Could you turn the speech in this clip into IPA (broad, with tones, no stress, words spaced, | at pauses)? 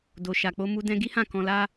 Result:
do˨ ʃa˨k͡po˧mu˧ dɛ̃˧ɡi˦ hã˦˨ kɔ̃˧la˦